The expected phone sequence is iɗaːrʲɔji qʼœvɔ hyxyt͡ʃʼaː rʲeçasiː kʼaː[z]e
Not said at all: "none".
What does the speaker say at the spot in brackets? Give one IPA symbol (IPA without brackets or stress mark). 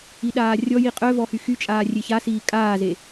z